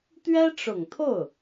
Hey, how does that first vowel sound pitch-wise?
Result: high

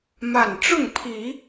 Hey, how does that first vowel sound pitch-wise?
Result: falling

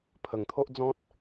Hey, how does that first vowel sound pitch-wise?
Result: low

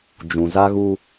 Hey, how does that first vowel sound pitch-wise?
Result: low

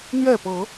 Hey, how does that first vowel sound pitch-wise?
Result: falling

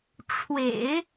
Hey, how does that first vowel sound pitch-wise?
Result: low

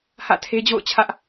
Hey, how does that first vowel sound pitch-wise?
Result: falling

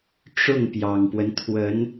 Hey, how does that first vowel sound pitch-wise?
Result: falling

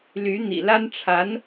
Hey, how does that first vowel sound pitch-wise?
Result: rising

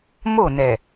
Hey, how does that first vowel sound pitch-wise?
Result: falling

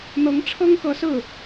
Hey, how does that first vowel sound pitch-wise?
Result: rising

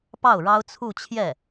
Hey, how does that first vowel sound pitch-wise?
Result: falling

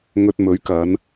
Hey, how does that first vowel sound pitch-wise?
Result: low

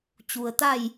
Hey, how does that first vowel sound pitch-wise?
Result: low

